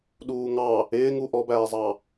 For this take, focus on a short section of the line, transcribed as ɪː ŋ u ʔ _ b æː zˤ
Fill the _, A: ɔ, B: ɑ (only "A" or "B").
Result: A